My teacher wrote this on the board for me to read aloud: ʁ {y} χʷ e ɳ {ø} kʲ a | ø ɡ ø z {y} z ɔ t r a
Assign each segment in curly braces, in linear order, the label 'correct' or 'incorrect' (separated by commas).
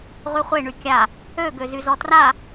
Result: correct, incorrect, correct